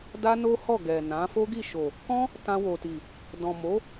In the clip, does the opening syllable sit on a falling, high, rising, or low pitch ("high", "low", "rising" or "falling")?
high